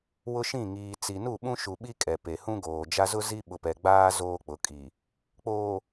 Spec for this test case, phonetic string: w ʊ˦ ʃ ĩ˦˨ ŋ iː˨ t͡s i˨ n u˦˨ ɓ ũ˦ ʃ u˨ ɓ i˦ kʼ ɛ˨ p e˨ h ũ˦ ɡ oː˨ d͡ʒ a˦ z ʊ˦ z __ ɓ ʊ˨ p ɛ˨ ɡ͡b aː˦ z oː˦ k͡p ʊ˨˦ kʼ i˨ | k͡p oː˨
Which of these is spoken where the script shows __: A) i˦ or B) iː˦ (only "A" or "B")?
A